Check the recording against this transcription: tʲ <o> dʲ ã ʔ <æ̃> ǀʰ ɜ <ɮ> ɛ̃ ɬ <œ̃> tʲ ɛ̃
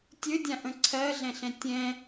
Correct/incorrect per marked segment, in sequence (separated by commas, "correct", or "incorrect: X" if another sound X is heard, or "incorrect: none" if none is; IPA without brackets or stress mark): incorrect: ɵ, incorrect: ə̃, correct, incorrect: ɛ̃